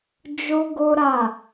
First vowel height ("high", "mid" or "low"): mid